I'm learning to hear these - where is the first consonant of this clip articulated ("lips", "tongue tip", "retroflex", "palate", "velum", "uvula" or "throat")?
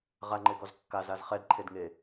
uvula